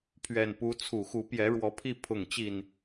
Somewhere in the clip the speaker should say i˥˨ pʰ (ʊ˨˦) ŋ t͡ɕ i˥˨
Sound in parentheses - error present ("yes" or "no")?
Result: yes